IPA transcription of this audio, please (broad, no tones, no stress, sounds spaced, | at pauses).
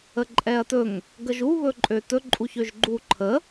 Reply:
ə ǃʼ ɛ ɐ̯ t ɵ ŋ | ɡ ə ʒ u β ɵ ǃʼ ø t ɵ ǃʼ u ç ø ʒ ɡ͡ǃ u ǃʰ ə